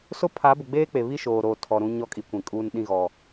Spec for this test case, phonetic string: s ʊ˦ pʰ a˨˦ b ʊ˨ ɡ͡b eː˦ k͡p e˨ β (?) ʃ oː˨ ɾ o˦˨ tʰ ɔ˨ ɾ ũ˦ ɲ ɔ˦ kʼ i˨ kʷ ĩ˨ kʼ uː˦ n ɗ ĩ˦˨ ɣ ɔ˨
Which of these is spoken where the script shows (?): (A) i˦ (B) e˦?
A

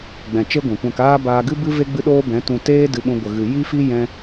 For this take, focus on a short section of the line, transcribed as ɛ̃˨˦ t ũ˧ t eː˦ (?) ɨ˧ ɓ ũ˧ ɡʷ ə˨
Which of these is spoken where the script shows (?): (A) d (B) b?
A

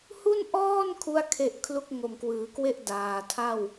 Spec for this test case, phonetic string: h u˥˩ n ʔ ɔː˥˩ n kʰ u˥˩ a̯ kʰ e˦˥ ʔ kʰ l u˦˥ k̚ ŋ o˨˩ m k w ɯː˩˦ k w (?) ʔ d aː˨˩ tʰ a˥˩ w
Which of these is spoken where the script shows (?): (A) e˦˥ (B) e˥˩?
B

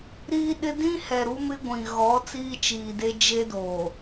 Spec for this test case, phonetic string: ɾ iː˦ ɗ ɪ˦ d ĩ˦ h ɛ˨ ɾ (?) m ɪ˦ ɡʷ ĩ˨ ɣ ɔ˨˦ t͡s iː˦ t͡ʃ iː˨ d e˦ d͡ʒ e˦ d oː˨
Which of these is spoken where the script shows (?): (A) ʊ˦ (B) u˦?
B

